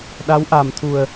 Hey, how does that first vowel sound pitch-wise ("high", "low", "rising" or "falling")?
rising